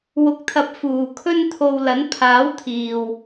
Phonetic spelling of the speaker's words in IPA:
w ʊ˨ k̚ t̪ʰ ɐ˨ p̚ f uː˨ kʰ ɵ˥ n t̪ʰ o˧ w l ɐ˨˥ n pʰ aː˨˥ w t̪ʰ iː˨ w

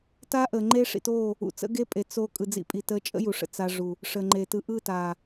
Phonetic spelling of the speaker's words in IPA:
t a˦ ʔ əː˨ ŋ͡ǃ e˦ ʂ ḭ˨ t oː˦˨ | ṵ˨ t͡s ə̰˦ ɡ e˦ pʼ e˨ t͡s o˧ kʼ ɯ˨ d͡z ḭ˧ pʼ i˨ t əː˧ t͡ʃʼ ə̰˦ j u˨ ʂ ə̰˨ t͡s a˧ ʐ u˨ | ʂ əː˨ ŋ͡ǃ eː˨ t ɯ˧ ʔ ɯ˦˨ t aː˨

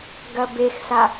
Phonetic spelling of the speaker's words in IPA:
ɡ ɐ b e x s a

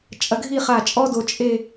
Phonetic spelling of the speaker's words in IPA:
t͡ʃʼ ɐ˧ ɡʱ i˥˧ χ a˧˩ t͡ʃʼ ɔ˥ d o˧ t͡ʃʼ e˥˧

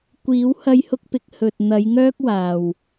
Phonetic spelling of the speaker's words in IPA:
kʷ iː˨˧ w h ɐ˧ j h ʊ˧ k̚ p ɪ˨ k̚ h ɵ˨ t̚ n̪ ɐ˨˧ j ŋ œː˥ k̚ w aː˨ w

